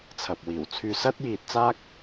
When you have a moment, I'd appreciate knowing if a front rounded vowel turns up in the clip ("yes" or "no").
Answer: yes